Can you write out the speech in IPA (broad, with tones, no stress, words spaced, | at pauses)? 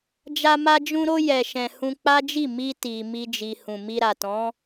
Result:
d͡ʒa˧ma˧ d͡ʒũ˧ɾo˧ jɛ˨ʃɛ̃˨ hũ˧k͡pa˦d͡ʒi˦˨ mi˧ti˨ mi˧d͡ʒi˨ hũ˨mi˧ɾa˨tɔ̃˨˦